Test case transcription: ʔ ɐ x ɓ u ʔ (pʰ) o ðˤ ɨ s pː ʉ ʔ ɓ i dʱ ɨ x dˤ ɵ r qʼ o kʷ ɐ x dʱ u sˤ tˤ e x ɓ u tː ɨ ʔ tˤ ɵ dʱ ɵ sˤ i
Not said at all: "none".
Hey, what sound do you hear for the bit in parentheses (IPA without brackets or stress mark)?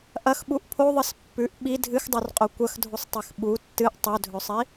pʰ